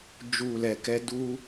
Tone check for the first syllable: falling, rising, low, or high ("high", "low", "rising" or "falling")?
low